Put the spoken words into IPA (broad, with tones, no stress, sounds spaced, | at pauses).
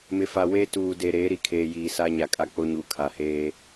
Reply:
m ɪ˨ f a˨ w eː˦ t uː˨ d e˨ ɾ eː˨˦ ɾ i˨ kʰ eː˨ j iː˨ s a˦ ɲ a˨ kʼ a˦ k͡p o˦ ɲ u˨˦ kʰ a˨ h eː˦